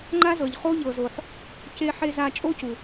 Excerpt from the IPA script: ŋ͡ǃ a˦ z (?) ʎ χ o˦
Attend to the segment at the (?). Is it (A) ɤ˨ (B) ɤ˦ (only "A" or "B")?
A